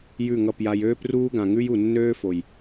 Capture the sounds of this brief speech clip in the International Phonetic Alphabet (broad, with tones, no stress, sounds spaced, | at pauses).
j ʉ˦˨ ŋ ʌ˦˨ p j a˧ j øː˦ p r uː˦ ɡ ã˨ ŋ ʉ˦ j u˨ nː øː˦ f o˨ j